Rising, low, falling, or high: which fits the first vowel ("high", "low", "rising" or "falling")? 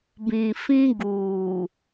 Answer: low